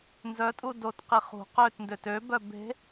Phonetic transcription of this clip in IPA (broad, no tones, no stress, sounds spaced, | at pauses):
n z œ tʼ u d o t q i χ ṳ q ø t n d ø t ø b œ b e̤